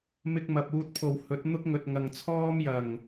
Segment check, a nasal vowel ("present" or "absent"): absent